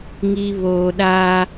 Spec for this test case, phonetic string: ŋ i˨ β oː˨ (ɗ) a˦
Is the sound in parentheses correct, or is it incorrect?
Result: correct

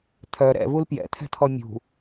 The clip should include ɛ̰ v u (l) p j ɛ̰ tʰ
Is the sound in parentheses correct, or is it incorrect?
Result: correct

